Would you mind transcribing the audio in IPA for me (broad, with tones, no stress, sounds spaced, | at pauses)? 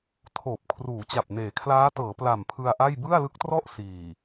tʰ oː˨˩ p̚ kʰ r uː˩˦ t͡ɕ a˨˩ p̚ n eː˩˦ kʰ l aː˦˥ t ɤː˩˦ p l a˨˩ m pʰ ɯ˧ a̯ ʔ a˥˩ j b ɯ˥˩ a̯ l ɯ˦˥ k̚ t r ɔ˥˩ ʔ s iː˨˩